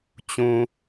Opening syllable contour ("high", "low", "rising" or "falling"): low